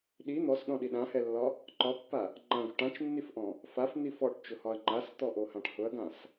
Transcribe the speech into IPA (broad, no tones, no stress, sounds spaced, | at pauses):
ɗ i n̪ ɔ s ɗ ɔ̃ ɗ i ɗ ã h ɛ lː ɒ | ǃ ɒ pː a | ŋ͡ǃ ã ɡ ʊ ʈ ã t͡ʃ nː i f ʔ ɔ̃ | f a f n̪ i f ɔ ʈ t͡ʃ ʊ h ɒ ɐ̯ ŋ͡ǃ a s t̪ ɔ ʔ o h ã ʈ h ʊ ɐ̯ ɡ ã s